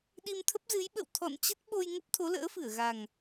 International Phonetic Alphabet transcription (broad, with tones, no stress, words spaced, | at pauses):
ɗi˧mt̪ʰə˦˥p̚zɨ˨˦j ɓə̰˧˨wt̪ʰɔ̰˧˨nt͡ɕə˦˥t̚ ɓo˧j ŋə˦˥p̚t̪ʰo˨˦lə̰ː˧˥fɨ˧˩ə̯ ɣa˨˩ŋ